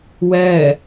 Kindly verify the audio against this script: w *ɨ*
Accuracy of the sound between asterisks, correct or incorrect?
incorrect